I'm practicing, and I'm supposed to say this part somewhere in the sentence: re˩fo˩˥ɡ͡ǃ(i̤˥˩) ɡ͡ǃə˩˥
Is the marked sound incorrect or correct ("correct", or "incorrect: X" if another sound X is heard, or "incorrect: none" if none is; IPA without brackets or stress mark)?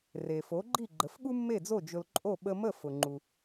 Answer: incorrect: i˥˩